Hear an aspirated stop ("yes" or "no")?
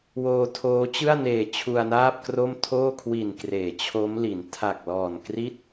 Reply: yes